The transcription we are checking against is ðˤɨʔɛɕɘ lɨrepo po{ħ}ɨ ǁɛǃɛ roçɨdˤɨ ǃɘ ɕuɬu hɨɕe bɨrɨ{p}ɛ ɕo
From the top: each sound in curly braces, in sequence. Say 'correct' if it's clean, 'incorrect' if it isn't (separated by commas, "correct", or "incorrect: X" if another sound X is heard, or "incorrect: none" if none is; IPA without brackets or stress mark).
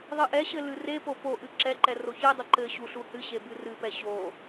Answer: incorrect: ʔ, correct